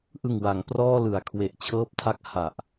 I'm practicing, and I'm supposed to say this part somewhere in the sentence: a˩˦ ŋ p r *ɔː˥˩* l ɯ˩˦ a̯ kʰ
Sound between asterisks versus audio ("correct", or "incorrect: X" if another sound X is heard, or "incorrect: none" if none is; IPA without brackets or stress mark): correct